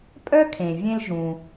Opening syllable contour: high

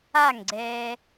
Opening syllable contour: falling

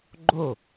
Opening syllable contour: falling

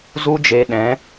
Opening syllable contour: high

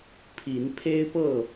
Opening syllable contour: rising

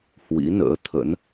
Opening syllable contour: rising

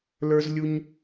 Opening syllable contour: high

